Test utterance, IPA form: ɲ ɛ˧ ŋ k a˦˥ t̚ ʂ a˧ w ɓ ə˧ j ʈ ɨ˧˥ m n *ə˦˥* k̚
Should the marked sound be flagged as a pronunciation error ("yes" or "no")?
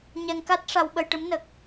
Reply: yes